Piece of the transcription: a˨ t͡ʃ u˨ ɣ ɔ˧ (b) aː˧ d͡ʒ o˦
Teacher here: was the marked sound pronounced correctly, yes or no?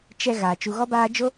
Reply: yes